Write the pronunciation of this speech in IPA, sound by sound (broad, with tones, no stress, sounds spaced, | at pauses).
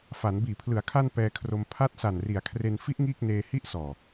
f a˩˦ n b iː˨˩ pʰ l ɯ˩˦ a̯ kʰ a˧ n p ɛː˧ kʰ r o˧ m pʰ a˦˥ t̚ s a˨˩ n r i˩˦ a̯ kʰ r e˧ n f i˦˥ ʔ ŋ iː˥˩ k̚ n eː˧ h i˥˩ ʔ s ɔː˨˩